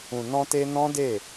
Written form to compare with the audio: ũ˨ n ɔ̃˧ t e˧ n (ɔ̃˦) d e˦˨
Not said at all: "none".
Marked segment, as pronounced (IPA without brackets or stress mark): ɔ̃˦